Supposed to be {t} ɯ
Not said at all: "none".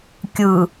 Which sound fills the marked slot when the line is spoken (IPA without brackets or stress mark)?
kʲ